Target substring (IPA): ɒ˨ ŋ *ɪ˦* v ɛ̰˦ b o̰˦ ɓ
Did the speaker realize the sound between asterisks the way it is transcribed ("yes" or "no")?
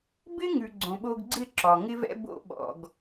yes